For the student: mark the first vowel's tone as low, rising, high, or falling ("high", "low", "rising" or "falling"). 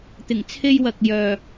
low